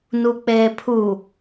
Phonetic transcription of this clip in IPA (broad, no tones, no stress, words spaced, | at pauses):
nuk͡peːpʰu